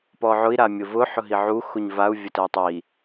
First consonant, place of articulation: labial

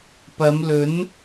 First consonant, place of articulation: labial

